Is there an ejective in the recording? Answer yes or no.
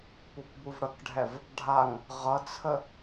no